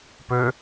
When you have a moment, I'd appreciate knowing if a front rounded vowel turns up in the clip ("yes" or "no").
yes